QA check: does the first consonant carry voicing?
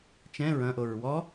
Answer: no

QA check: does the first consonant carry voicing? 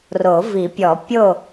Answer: yes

